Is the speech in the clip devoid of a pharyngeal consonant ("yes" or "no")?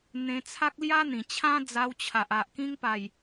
yes